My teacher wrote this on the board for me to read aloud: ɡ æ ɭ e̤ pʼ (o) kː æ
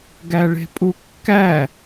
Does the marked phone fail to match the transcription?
yes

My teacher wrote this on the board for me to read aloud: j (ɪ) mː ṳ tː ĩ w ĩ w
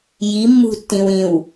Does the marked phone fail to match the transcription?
yes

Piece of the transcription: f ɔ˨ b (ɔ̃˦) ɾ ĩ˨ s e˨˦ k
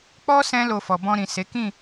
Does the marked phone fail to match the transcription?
yes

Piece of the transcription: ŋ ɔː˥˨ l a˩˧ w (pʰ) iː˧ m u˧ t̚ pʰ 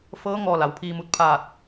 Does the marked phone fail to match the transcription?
no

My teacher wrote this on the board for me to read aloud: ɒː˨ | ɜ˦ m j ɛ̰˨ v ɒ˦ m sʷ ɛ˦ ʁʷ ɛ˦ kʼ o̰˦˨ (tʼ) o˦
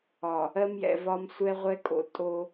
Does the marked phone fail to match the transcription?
no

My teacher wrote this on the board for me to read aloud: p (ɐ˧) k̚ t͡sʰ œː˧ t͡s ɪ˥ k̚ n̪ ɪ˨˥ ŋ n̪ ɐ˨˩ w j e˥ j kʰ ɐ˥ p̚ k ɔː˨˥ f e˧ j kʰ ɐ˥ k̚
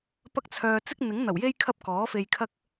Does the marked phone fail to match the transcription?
yes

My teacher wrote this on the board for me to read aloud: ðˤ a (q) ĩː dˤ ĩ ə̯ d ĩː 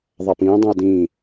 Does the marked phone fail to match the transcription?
yes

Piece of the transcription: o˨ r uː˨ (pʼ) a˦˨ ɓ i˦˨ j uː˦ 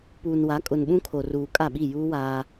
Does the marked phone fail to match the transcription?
yes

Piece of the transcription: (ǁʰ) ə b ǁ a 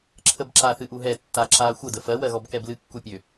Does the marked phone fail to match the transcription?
no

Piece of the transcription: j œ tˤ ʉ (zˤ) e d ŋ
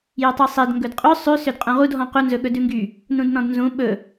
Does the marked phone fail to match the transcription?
yes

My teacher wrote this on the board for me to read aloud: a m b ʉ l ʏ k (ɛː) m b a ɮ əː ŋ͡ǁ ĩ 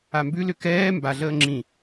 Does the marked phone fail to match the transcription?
no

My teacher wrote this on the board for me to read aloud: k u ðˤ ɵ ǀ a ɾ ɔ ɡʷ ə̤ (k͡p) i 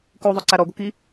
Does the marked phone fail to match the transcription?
yes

